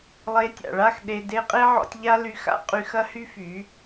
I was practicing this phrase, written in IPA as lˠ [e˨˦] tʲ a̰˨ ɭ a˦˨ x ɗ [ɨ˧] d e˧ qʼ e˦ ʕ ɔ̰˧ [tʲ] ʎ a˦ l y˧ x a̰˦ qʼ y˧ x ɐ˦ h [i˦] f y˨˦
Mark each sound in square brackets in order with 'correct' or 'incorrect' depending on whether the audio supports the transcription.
correct, incorrect: e˧, correct, incorrect: y˦

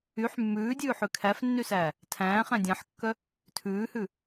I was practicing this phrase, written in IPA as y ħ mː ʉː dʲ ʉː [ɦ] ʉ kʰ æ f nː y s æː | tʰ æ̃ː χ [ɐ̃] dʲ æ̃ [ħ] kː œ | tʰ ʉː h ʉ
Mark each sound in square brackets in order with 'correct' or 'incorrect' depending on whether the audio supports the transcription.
incorrect: ħ, incorrect: æ̃, correct

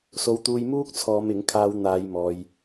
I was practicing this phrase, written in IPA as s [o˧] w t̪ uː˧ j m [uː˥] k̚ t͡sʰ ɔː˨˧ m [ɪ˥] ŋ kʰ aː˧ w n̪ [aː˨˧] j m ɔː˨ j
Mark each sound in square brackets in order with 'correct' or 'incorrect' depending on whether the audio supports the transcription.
correct, correct, incorrect: ɪ˨˥, correct

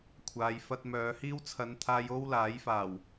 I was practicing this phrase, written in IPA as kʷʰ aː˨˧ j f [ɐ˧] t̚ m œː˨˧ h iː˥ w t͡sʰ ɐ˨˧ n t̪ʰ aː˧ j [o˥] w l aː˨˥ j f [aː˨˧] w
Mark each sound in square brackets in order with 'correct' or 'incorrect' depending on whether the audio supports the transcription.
correct, correct, incorrect: aː˨˩

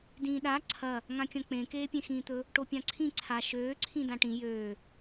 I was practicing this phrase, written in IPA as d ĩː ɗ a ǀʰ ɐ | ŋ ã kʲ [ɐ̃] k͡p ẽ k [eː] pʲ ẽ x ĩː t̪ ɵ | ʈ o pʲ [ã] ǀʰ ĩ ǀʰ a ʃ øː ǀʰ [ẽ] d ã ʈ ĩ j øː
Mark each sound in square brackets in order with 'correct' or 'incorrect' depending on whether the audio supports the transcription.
correct, correct, correct, incorrect: ĩ

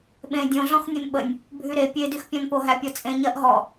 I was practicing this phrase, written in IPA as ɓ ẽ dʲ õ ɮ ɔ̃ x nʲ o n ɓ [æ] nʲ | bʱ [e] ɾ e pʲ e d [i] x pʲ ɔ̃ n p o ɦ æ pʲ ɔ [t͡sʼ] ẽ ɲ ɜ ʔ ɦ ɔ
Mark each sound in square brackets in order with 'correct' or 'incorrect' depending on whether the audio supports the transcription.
incorrect: ə, incorrect: y, incorrect: y, correct

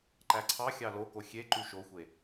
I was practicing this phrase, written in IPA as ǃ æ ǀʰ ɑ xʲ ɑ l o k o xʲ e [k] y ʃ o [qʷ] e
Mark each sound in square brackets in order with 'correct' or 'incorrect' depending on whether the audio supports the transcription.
incorrect: ǃ, incorrect: xʷ

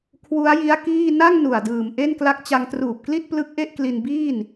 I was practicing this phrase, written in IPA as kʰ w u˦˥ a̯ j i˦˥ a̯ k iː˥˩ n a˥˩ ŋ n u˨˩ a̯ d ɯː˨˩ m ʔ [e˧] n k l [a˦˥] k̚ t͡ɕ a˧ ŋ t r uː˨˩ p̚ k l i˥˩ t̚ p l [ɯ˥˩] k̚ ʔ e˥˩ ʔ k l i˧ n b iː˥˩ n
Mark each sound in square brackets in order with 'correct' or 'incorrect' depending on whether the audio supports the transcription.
incorrect: e˥˩, correct, incorrect: ɯ˦˥

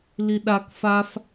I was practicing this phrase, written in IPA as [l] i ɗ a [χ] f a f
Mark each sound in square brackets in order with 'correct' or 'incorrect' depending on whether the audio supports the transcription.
correct, incorrect: k

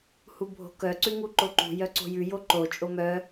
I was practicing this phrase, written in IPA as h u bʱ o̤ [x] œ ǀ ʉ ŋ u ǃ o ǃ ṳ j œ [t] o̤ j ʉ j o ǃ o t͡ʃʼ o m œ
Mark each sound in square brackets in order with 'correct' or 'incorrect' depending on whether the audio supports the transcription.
incorrect: k, incorrect: ǀ

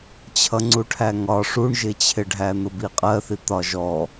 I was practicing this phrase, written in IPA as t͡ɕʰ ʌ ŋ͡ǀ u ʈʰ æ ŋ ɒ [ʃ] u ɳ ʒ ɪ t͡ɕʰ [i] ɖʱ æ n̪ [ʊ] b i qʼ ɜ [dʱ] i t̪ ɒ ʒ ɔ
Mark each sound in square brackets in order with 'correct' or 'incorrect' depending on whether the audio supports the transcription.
incorrect: ʂ, incorrect: ɪ, correct, incorrect: θ

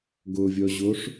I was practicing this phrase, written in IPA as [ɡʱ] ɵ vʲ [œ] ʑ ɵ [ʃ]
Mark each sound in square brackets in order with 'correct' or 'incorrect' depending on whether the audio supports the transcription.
incorrect: ɡ, correct, incorrect: ʂ

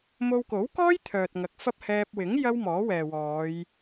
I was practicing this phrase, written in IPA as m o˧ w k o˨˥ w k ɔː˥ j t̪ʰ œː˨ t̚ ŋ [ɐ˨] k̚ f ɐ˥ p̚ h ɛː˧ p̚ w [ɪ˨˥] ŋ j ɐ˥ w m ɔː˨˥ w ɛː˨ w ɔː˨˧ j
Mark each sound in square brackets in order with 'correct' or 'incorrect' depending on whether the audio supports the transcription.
correct, correct

